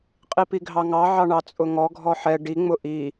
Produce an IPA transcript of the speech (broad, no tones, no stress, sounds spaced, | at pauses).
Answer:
qʼ i p i ɡʱ ɑ ŋ ɑ ʕ ɑ ɳ ɑ t͡sʼ ʊ ŋ ɔ ɡʱ ɔ ħ ɛ ɖ i ŋ͡m ʊ ʔ i